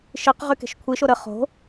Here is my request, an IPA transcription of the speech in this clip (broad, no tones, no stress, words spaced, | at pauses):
ʃiq ʁyke̤ʃkʷʰiʃo ɾə χo̤